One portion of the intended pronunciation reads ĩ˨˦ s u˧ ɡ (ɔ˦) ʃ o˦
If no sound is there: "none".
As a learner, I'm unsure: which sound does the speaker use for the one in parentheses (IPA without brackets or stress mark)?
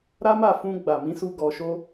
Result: ɔ˧